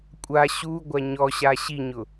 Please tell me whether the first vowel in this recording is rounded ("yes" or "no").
no